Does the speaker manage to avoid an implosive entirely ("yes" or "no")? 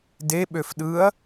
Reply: no